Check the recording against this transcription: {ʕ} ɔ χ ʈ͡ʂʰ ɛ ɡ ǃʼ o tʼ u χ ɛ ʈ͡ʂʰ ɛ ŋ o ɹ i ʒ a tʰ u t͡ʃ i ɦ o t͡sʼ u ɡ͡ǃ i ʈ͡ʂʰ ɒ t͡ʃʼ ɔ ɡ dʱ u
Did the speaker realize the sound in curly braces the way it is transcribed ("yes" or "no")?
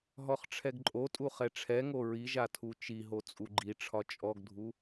no